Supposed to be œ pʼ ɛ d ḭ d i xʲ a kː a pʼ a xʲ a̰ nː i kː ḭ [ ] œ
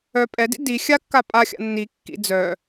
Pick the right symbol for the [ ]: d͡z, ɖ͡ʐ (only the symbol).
d͡z